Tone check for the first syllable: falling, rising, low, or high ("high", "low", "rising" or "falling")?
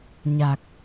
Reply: low